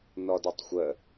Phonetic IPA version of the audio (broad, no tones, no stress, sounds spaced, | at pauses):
n ɔ d ɔ tˤ xʷ ə